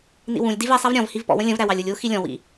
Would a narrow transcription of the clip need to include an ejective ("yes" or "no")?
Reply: no